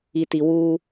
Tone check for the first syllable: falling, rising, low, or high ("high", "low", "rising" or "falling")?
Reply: low